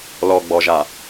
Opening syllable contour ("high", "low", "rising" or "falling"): low